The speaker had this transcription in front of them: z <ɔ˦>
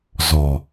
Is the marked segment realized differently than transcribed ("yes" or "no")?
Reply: yes